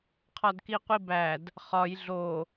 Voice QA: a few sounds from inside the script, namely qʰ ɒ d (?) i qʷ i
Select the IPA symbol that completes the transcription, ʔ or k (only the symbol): k